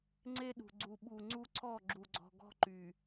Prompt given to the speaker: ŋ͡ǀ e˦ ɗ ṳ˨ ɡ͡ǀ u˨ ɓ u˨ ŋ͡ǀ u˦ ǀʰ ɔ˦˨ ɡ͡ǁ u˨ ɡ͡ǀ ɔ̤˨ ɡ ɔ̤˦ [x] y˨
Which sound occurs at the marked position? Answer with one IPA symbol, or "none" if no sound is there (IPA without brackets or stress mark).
ǃ